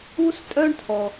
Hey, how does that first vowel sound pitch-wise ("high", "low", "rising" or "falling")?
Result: high